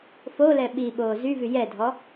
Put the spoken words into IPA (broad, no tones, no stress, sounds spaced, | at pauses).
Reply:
f o l ɛ ɓ i ɓ oː z y v y j ɛ dʱ ɔ